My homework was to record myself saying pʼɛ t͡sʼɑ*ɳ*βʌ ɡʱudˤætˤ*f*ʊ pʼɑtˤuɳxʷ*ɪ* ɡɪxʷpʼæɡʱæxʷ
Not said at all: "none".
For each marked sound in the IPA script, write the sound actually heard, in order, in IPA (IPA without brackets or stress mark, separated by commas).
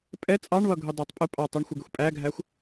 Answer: ɳ, pʼ, ɪ